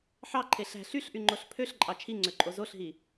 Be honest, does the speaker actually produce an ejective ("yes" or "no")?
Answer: yes